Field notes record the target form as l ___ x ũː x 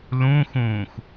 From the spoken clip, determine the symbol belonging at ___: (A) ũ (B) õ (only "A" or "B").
A